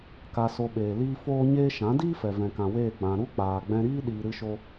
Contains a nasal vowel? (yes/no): yes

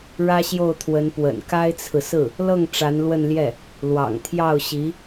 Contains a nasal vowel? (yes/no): no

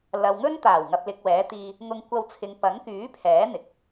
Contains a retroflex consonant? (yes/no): no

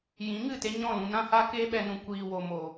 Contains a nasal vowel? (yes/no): yes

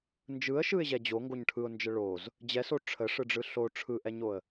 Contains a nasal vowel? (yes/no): no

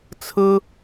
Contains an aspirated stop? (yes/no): yes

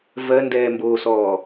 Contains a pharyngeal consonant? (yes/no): no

